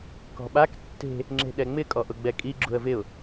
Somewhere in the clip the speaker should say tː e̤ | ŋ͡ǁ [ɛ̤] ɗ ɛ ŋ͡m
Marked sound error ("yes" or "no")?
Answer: yes